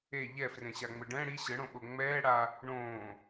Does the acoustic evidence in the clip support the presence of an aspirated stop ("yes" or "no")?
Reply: no